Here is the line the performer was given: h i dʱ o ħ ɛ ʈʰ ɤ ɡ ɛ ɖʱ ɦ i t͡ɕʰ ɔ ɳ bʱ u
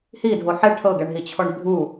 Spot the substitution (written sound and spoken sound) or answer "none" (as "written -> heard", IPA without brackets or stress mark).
ɖʱ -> ɳ